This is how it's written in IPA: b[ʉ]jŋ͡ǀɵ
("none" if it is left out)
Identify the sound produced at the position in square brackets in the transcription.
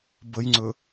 ə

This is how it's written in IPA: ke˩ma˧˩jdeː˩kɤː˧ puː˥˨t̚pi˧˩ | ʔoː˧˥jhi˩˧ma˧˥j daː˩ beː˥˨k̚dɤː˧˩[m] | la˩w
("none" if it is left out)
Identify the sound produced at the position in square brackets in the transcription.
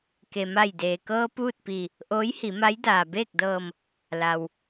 m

